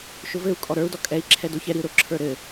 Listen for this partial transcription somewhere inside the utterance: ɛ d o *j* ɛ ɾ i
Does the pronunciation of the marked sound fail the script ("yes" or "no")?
yes